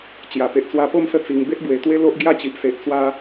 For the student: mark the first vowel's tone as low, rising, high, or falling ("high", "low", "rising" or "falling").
low